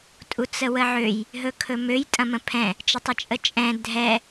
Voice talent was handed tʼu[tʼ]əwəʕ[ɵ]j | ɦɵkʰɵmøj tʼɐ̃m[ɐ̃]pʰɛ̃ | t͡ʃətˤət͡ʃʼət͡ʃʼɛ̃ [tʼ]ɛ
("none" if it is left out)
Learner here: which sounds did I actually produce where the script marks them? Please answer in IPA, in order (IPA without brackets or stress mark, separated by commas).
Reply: t͡s, ø, ə̃, dʱ